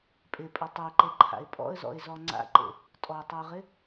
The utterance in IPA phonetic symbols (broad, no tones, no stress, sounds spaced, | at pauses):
pʼ ɪ pʼ ɵ tˤ e ǃ e ǃʰ a̰ ɪ̯ pʼ ɔ̰ ə̯ z ɔ̰ ɪ̯ z ɔ ŋ͡ǀ a̰ ǃ ḛ | tʼ ɔ tˤ ɵ ʊ̯ ʁ ɪ